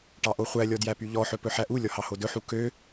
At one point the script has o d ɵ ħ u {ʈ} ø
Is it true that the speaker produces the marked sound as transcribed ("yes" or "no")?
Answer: no